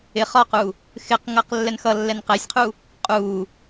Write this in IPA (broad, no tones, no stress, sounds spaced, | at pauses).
ɪ χ ɒ q u | x ɪ q ŋ ʌ q lː ɛ n x ʌ lː ɛ n q ɛ sʲ qʰ u | qʼ u